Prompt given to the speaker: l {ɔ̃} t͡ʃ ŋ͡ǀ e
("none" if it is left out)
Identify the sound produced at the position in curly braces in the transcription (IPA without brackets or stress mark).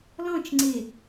ɔ̃